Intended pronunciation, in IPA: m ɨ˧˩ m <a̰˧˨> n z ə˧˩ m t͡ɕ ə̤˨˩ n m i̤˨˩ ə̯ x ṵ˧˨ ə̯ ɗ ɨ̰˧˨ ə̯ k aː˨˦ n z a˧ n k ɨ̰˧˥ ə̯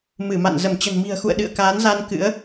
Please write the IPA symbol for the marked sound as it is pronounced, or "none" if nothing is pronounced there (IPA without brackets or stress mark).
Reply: a̰˧˨